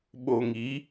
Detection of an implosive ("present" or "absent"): present